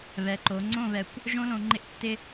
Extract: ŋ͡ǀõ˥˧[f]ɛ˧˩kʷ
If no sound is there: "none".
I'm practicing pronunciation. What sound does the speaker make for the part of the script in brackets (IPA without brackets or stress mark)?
β